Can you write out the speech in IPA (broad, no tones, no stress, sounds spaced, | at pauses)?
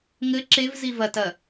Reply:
ŋ ɘ ǁ e v z i v ɐ t ɐ